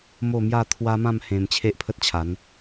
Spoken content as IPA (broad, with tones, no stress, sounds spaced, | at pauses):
m o˥˧ m j a˥˧ t̪ʰ w a˦ m ã˥˧ m h ẽ˧ m t͡ɕʰ e˦ ʔ pʰ ə˦ t̚ t͡ɕʰ a˨˦ n